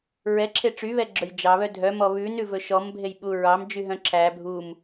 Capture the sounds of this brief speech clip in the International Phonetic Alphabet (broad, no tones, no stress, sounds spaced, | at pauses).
ɹ ɛ ǁʰ e ʈ͡ʂ y β ɛ ɡ͡ǁ ɵ j d͡ʒ ɑ β œ dʱ œ m ɔ β ʉ n ʉ v ɵ ʃ ɔ m bʱ e j ɓ u ɹ ɑ m d͡ʒ y ɦ œ̃ ǁʰ æ bʱ u m